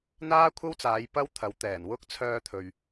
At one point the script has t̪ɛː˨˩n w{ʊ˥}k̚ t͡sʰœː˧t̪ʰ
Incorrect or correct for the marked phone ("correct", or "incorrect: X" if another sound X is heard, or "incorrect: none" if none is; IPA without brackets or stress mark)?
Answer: correct